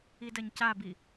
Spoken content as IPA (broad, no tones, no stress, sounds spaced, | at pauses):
i d ɐ ɲ c a b i